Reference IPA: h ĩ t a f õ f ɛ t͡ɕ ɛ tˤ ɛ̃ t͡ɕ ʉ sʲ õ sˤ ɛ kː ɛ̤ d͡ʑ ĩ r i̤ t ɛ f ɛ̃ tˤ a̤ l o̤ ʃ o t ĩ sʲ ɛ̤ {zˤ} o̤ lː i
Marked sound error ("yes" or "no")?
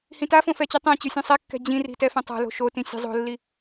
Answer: no